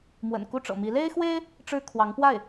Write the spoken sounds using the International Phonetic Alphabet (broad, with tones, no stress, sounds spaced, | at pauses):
m w ə̰˨˩ n k u˥˩ ʈ͡ʂ ɤ̰˨˩ m i˧˥ l e˥ ɪ̯ x w e˥ ɪ̯ | ʈ͡ʂ ɻ̩˥ kʰ w ɑ˧˥ ŋ p w a˥˩ ɪ̯